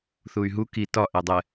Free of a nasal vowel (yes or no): yes